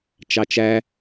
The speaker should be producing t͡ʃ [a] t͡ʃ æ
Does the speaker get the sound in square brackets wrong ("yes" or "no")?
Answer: yes